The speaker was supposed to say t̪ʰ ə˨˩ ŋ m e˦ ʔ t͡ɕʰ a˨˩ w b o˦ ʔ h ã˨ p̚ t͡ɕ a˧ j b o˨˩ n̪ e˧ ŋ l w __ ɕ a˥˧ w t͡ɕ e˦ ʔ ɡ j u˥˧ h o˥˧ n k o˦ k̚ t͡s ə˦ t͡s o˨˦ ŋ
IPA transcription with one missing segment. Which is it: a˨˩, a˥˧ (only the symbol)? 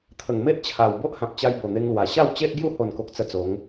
a˨˩